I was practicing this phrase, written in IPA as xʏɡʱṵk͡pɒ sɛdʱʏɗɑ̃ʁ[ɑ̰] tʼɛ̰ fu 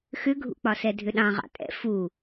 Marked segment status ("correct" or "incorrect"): correct